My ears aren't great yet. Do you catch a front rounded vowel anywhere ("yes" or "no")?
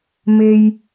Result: no